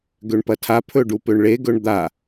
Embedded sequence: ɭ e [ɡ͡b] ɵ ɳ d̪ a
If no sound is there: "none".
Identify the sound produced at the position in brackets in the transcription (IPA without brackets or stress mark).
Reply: ɡ